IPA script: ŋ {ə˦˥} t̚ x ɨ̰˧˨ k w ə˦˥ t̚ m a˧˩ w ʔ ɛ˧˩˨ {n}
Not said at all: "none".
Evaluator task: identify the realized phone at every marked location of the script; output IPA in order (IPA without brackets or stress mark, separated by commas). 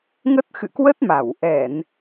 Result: ə˦˥, n